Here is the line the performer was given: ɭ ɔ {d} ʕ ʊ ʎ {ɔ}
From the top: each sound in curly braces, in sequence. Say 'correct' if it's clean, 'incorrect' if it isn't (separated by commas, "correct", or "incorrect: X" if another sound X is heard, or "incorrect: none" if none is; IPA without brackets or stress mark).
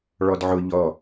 correct, correct